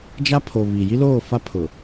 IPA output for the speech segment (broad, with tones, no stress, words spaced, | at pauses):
d͡ʒa˦pʰo˨ βi˨ ji˦loː˦˨ fa˦pʰʊ˨